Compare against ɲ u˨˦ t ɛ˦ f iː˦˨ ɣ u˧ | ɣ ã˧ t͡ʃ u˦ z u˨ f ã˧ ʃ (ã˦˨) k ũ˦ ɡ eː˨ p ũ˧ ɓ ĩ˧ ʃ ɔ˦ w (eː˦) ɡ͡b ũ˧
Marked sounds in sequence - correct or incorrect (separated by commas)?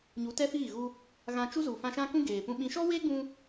incorrect, correct